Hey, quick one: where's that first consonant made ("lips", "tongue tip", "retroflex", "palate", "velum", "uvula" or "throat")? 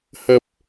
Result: throat